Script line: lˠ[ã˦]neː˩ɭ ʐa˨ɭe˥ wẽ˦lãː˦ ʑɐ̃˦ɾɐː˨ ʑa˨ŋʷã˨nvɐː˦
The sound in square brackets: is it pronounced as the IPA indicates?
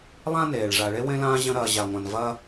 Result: yes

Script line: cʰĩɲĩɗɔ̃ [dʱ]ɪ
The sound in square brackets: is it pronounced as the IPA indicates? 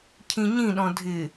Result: yes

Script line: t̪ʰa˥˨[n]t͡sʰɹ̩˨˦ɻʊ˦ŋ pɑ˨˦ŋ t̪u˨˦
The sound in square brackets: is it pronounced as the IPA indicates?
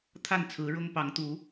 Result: yes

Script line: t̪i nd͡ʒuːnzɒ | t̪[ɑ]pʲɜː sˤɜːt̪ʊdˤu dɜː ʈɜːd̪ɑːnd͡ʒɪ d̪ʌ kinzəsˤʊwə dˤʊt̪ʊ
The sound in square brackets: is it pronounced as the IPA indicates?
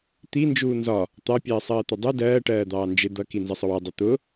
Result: yes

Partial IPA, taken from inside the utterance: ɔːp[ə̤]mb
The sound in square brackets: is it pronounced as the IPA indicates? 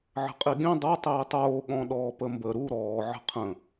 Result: no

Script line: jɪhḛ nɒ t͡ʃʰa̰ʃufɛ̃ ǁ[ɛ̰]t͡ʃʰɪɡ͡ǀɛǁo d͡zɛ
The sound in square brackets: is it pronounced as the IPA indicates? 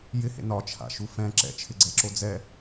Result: yes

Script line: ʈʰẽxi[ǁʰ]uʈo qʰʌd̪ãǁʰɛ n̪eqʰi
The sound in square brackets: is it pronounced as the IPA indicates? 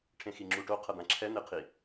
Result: no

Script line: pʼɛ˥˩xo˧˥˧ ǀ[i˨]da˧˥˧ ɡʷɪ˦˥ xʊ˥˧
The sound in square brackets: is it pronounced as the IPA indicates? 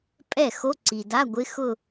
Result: yes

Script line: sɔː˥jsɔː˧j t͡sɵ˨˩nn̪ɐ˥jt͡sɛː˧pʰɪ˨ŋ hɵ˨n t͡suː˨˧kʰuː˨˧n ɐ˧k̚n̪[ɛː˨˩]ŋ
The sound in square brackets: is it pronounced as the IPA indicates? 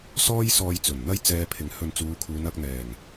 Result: yes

